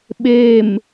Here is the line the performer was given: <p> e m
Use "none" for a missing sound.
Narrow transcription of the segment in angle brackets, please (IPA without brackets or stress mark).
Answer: ɓ